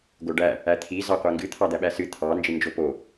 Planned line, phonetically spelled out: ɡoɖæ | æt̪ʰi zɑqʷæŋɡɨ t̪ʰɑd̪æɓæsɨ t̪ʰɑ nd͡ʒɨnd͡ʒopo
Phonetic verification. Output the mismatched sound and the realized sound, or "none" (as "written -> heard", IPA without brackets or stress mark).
none